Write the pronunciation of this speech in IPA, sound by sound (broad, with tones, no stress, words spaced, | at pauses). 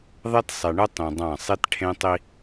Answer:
ðˤɛ˦tsˤe˨ɳɯ˦ tˤĩ˨dˤã˦˨ sˤi˦tʈʰẽ˦tˤi˦